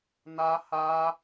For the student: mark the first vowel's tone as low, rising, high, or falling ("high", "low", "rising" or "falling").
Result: high